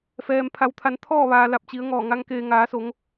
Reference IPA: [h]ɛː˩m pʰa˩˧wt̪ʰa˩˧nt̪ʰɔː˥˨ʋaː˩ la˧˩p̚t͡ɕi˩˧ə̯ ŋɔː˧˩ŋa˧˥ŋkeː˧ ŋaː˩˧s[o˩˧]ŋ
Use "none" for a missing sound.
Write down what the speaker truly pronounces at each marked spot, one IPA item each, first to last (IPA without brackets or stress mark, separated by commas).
f, o˩˧